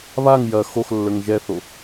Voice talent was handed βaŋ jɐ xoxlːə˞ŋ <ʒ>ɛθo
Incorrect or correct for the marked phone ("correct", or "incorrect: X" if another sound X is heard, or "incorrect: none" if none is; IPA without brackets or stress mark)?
correct